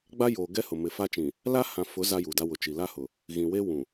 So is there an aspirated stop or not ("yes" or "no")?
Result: no